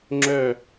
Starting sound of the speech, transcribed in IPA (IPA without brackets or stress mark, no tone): ŋ͡ǁ